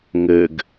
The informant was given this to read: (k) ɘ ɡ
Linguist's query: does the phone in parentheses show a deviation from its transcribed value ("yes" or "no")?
yes